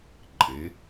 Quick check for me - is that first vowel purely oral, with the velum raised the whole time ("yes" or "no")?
yes